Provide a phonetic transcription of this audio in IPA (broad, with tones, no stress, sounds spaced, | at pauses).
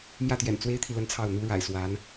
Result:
m j ä˥˩ t̪ j ɛ̰˨˩ n t͡s w e˥ ɪ̯ t̪ʰ i˨ l ə˥˧ n t͡sʰ ɑ˥˩ ʊ̯ n̪ u˥ ɻ a̰˨˩ ɪ̯ s w a˧˥ n